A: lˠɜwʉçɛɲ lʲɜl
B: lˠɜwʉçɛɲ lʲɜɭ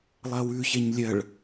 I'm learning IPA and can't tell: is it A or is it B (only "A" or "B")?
B